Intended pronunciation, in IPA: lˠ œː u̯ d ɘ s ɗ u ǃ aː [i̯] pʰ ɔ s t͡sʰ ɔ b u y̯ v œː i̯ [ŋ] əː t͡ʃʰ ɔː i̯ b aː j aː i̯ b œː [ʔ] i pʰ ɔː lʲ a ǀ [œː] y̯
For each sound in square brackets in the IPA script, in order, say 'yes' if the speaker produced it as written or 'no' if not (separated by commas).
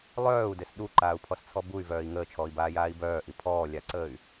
no, yes, yes, no